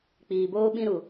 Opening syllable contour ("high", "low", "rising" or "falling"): low